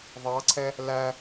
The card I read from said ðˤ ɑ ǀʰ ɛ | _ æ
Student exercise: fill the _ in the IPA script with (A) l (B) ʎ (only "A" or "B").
A